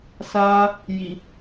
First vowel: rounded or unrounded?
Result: unrounded